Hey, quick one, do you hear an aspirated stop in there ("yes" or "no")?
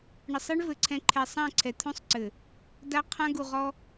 yes